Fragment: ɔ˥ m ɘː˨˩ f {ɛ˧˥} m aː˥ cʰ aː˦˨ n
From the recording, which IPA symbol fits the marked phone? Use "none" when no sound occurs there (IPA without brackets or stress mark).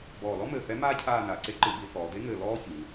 ɛ˧˥